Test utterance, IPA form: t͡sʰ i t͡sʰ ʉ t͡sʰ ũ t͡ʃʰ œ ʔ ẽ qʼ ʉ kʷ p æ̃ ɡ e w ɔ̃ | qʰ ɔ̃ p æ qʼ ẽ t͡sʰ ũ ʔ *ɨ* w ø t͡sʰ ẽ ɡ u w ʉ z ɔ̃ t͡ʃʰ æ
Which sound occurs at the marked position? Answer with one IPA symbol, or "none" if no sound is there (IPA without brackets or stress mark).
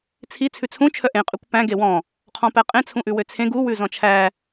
ʉ